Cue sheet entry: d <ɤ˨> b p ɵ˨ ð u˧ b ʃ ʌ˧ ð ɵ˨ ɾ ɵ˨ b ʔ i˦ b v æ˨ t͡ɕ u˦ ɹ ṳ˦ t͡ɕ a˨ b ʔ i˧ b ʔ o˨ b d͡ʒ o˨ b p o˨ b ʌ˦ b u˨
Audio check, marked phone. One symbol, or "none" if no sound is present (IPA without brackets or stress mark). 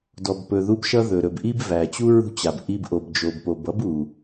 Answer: ɔ˨